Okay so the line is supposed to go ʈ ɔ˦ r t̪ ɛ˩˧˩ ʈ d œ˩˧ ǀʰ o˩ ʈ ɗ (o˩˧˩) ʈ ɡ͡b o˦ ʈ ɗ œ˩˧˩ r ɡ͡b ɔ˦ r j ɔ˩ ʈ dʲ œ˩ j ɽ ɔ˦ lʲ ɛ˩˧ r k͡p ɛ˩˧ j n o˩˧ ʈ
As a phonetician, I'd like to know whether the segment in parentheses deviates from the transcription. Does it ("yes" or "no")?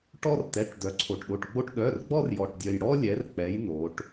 no